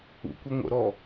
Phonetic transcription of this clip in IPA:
ṵkʷi ŋʷə̰ɾɔ

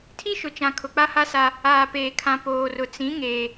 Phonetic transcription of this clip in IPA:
tʰi˦ʃʊ˨t͡ʃã˨ kʰʊ˨k͡pa˦ha˦sa˦ | aː˨peː˨kʰã˨ poː˨rʊ˨ t͡sĩ˨˦ ŋeː˦

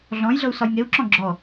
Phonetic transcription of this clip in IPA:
ɮɔ̃jɮɤu̯ sɒjŋeu̯ǁɔ̃ ɡ͡ǁɔ

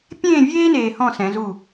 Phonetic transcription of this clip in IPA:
pʲẽː˥˧vʲeː˥ neː˧hɔ̃˥˧sɛ̃˩˧ zu˧˩

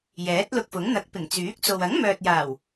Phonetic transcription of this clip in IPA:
jɛː˨˥t̚lʊ˧k̚fʊ˨˥ŋ n̪ɐ˨˥k̚pɪ˨˩ŋ t͡syː˨˥k̚t͡so˨w ɐ˨˥ŋmœː˨t̚jaː˨˩w

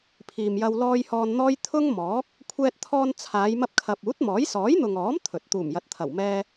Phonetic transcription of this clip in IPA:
pʰiː˨mjɐ˧w lɔː˧j hɔː˧nn̪ɔː˥j t̪ʰʊ˥ŋmɔː˨˥k̚ | kʷʰɛː˧t̚t̪ʰɔː˧nt͡sʰaː˨˧j mɐ˧p̚kʰɐ˨p̚ uː˨˥t̚mɔː˨˥j sɔː˨˥jn̪ʊ˨ŋɔː˨˥m t̪ʰɵ˨t̚ t̪uː˨˩mjɐ˨˥t̚t̪ʰɐ˨˩w mɛː˧

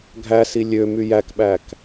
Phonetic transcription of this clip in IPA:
ɡʱæsi lʲø myjækɓæk

